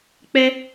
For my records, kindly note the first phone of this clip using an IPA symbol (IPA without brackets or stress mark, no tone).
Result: k͡p